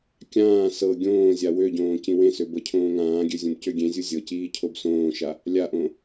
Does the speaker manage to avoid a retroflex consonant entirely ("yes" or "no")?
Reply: yes